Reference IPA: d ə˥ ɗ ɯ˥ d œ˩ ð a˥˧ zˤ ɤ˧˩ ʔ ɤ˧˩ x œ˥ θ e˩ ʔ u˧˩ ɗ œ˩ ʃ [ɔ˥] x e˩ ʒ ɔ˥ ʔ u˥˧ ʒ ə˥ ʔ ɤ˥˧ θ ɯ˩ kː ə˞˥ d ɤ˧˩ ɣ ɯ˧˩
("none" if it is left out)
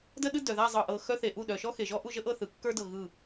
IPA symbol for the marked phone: ɔ˥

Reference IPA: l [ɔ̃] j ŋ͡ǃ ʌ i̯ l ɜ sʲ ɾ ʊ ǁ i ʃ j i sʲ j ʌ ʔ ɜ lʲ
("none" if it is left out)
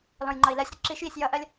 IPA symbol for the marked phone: ɔ̃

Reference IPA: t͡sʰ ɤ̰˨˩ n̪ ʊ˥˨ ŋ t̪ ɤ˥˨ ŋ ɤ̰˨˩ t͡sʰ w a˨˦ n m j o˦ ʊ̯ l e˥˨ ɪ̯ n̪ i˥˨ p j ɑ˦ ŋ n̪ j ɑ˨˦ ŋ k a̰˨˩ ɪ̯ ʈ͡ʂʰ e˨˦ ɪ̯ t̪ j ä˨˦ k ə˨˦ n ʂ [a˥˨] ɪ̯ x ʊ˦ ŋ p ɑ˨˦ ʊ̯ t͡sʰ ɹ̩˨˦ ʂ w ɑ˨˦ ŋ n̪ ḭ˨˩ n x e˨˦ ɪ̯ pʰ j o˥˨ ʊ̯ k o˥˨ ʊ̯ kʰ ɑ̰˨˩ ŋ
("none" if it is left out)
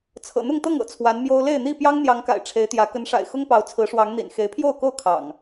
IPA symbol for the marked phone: a̰˨˩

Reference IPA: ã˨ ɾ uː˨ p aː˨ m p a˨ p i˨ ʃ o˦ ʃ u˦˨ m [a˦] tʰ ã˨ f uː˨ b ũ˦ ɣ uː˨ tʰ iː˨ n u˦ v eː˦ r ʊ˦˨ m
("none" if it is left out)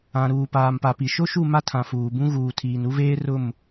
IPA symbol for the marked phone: a˦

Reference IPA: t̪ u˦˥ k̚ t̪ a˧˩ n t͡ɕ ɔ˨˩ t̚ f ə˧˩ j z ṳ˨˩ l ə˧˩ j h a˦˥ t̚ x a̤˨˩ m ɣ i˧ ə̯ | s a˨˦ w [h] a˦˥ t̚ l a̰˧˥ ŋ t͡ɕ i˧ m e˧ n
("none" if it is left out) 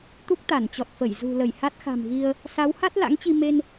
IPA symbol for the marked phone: h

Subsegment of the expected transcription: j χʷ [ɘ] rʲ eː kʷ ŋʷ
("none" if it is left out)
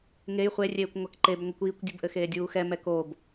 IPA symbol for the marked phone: e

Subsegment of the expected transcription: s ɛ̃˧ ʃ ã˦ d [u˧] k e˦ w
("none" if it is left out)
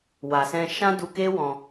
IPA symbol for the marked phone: u˧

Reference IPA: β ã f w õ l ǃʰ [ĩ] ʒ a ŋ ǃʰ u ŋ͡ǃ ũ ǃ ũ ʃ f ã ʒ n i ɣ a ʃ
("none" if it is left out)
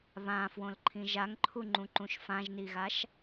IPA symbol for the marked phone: ĩ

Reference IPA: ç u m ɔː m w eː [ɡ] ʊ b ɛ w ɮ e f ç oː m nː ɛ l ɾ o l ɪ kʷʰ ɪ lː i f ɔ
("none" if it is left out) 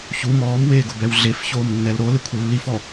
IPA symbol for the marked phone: ɡ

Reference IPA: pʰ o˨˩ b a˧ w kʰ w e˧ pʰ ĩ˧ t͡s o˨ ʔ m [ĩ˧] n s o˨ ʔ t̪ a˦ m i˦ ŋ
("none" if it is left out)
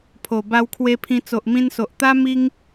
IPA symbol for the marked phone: ĩ˧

